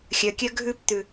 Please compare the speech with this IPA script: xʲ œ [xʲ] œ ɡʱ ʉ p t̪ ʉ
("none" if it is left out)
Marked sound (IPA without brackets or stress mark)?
kʲ